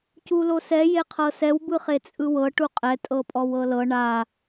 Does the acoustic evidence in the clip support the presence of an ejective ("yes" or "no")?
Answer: yes